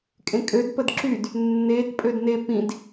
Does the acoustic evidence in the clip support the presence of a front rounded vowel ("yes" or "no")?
yes